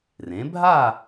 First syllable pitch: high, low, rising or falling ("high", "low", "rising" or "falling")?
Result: rising